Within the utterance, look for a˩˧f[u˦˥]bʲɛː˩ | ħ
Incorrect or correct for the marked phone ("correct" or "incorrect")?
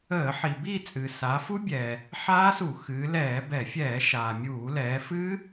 correct